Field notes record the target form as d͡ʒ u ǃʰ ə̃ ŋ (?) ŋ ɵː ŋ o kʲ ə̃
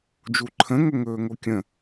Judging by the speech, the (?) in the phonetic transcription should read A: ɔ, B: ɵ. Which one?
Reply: B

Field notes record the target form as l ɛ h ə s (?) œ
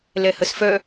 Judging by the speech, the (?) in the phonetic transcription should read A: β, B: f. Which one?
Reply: B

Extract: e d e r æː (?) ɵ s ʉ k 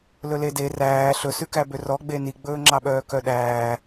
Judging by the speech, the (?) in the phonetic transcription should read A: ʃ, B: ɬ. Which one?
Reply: B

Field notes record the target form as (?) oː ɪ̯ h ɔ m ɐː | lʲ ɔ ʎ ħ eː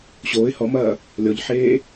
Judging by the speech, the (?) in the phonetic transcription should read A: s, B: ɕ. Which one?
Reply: B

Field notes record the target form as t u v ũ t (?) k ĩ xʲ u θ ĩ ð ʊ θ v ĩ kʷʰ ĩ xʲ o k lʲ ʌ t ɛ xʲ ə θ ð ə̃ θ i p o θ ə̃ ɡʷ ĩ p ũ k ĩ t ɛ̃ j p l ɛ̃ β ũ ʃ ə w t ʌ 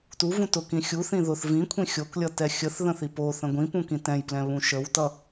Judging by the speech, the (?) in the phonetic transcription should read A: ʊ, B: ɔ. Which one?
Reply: A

